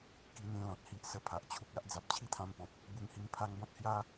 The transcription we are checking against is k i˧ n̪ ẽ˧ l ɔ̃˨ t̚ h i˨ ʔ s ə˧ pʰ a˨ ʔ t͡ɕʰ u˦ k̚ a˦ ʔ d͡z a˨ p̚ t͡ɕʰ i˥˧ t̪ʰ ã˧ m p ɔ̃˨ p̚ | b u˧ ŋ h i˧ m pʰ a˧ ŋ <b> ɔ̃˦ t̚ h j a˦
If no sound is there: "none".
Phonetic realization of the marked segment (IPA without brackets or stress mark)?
b